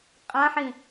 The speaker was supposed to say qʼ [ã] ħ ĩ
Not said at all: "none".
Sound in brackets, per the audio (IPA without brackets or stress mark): ã